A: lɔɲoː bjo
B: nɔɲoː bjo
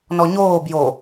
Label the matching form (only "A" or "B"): B